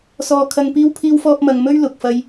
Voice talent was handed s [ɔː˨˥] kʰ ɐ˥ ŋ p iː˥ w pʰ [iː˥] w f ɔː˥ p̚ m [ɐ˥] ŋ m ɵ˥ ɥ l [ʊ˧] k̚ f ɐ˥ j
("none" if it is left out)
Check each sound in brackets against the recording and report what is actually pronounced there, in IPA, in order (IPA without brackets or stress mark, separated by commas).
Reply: ɔː˥, iː˥, ɐ˧, ʊ˧